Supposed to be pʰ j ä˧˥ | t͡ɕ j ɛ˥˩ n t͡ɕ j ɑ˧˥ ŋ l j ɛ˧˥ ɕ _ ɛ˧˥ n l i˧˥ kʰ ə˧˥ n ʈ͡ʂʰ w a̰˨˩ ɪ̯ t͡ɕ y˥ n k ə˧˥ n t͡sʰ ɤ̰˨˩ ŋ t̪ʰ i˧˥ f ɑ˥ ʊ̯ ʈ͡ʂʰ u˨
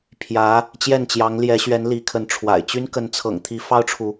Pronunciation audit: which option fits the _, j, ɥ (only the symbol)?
ɥ